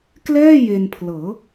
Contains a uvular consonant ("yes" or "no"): no